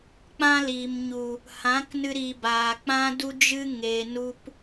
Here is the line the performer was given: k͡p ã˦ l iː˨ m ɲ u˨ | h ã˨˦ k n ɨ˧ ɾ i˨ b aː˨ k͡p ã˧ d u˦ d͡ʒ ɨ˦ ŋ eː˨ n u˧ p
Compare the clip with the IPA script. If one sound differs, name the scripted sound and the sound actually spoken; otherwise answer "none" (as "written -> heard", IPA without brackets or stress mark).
none